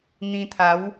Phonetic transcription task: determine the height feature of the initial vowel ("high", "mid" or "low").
high